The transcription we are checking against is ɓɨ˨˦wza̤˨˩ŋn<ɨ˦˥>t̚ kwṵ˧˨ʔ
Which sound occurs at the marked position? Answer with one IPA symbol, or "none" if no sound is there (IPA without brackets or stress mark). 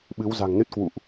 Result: ɨ˦˥